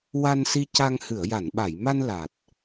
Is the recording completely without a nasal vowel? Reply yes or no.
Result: yes